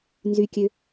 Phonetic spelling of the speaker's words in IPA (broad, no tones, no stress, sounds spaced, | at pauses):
n z y kʲ ø